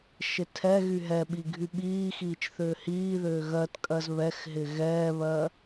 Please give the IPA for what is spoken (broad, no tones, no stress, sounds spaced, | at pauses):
ʃ ɪ tʰ ɛ ɣ y ɦ ɛ ɓ i ɡʱ y ɓ iː x iː t͡ʃ θ ʏː h iː ð ʏː ɣ ɜ t kʼ ɜ z β ɛ x ɦ ɪ ɣ ɛː β ɜ